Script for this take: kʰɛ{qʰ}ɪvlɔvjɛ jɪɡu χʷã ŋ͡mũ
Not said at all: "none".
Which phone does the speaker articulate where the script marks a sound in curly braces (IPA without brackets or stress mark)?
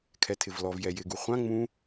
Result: tʰ